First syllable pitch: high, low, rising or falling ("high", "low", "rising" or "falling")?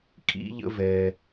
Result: high